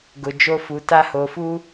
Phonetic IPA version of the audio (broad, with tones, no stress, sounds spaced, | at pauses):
ɡ ʊ˨ d͡ʒ o˦ f u˨ t a˦ h oː˨ f uː˦